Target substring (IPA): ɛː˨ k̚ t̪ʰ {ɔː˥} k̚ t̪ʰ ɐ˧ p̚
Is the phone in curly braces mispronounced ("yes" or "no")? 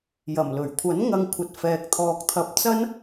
yes